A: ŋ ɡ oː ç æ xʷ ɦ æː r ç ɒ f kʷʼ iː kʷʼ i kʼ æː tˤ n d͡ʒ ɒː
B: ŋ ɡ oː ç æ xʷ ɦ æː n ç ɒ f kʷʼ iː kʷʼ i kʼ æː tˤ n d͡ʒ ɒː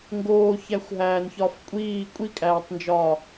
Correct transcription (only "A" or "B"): B